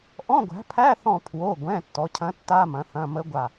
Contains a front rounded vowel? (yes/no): no